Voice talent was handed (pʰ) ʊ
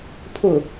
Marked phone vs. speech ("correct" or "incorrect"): correct